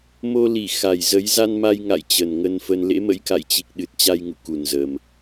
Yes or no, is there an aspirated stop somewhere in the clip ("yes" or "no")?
no